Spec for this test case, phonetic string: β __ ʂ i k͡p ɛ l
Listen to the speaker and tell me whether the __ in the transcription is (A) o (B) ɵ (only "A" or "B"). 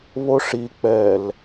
A